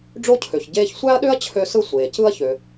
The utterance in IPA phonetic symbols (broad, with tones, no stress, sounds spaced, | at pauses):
ɖ͡ʐ o˦ cʰ ø˩ ç ɟ eː˦ ç sʷ æ˥ ɐ̯ ɗ ø˥ ɐ̯ t͡ɕʰ ø˦ s ɯ˦ sʷ eː˩ c ɯ˦ ɐ̯ ç ø˩